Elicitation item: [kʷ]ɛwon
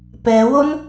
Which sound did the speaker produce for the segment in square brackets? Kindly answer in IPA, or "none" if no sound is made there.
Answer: p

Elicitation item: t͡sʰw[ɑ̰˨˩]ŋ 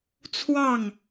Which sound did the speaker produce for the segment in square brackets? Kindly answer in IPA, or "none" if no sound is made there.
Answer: ɑ˥˩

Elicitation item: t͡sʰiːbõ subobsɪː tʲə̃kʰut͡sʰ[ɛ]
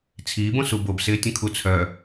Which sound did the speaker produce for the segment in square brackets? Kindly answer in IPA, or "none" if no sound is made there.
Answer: œ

